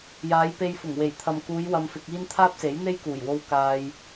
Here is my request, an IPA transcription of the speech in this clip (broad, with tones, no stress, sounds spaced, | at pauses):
j aː˨˧ j p e˧ j f ʊ˨˩ ŋ w e˨˩ j t̪ʰ ɐ˨ m k uː˨˧ j w ɐ˧ m f ɪ˧ k̚ iː˥ n t̪ʰ aː˥ p̚ s e˨˥ j n̪ e˥ j k uː˨˩ j w o˧ w k aː˧ j